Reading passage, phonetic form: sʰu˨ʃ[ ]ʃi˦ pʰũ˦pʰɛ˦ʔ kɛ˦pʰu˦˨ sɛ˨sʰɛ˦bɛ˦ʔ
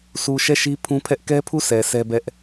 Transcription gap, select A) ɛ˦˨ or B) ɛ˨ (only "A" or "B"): A